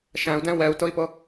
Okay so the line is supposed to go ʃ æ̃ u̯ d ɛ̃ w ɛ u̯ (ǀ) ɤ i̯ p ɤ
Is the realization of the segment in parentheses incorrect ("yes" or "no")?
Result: yes